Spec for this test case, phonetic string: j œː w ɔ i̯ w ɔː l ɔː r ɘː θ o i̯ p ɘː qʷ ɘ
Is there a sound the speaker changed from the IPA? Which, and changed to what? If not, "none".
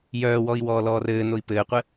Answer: θ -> n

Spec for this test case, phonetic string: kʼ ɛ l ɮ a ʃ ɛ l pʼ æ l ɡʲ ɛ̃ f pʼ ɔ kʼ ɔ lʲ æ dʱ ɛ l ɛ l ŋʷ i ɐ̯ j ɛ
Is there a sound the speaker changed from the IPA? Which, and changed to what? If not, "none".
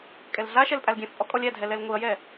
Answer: none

